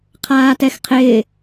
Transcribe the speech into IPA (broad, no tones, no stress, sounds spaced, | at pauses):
qʰ aː t ɛ x qʰ ɪː